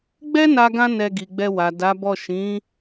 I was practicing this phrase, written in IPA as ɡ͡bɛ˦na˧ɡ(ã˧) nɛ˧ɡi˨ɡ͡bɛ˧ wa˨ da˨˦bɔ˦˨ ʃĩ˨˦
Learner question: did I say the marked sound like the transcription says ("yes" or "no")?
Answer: yes